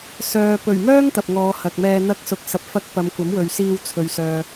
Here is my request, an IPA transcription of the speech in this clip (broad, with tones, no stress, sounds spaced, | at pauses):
s œː˨ p ɵ˨˩ ɥ m œː˥ ŋ t̪ ɐ˨ p̚ ŋ ɔː˨˧ h ɐ˨ k̚ m ɛː˧ n̪ ɐ˧ k̚ s ʊ˨ k̚ s ɐ˨ p̚ f ɐ˧ k̚ p ɐ˨˧ m kʷ ɐ˨˥ m w ɵ˨ ɥ s iː˧ w t͡sʰ ɵ˨ ɥ s œː˨